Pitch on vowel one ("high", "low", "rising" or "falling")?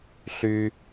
high